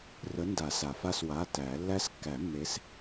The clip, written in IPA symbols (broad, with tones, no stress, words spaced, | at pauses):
rə˨˦ nda˨˩˦sa˩fa˦˨s wa˩˧˩ tæ˨˩˦ lːæ˦˥s kːæ˨˩˦mːe˨˦s